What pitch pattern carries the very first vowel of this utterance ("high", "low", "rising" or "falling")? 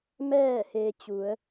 falling